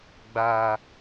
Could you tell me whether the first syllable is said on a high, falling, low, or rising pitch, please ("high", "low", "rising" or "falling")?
low